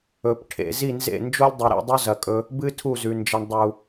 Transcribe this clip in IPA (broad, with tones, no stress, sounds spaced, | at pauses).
ɵ˨ p ʈʰ ḛ˨ z i˦˨ n z ḛ˦˨ n d͡ʒ o˦ lʲ dˤ ɨ˨ ɾ ḭ˦˨ dˤ u˦ z ɐ˨ kʼ ɵ˧ | b ɨ˦ tʰ u˦˨ z ʉ˨ n d͡ʒ ɐ˧ ɳ dˤ u˨